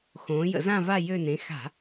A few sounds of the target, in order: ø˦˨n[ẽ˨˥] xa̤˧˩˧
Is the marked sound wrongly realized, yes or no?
no